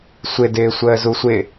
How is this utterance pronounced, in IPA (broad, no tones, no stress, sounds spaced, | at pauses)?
sʷ ɪ d ɪː sʷ əː z u sʷ ɪ